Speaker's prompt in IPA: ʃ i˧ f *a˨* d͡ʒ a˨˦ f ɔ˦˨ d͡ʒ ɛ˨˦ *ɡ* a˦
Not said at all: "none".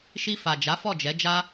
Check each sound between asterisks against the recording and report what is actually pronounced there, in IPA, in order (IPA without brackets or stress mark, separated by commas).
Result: a˨, d͡ʒ